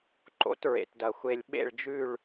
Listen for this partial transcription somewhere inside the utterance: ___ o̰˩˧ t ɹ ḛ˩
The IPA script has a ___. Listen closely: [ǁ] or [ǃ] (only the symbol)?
ǃ